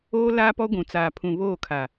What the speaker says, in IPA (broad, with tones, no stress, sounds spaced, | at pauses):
oː˦ l aː˦ p ɔ˦ ɡʷ ũ˨ t͡s aː˨ pʰ ũ˨ β oː˦˨ kʰ a˨